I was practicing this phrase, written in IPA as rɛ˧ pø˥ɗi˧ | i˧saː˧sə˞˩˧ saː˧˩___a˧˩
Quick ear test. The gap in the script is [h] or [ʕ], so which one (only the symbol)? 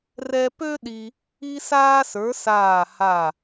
h